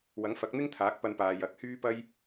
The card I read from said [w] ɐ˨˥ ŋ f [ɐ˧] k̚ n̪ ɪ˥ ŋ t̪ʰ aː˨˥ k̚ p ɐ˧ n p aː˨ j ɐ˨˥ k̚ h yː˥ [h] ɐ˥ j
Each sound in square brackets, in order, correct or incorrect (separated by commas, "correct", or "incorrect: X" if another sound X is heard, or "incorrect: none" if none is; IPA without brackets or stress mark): correct, incorrect: ɐ˨˥, incorrect: p